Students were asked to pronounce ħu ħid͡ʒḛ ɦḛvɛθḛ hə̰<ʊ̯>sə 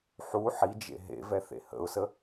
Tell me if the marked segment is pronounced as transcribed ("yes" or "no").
yes